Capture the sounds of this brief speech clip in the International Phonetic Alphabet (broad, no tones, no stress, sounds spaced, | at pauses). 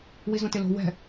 w i z õ t ɪ l o̤ w ɛ̤